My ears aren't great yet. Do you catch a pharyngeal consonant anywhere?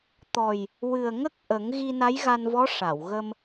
no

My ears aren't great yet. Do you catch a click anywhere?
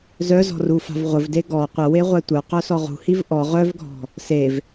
no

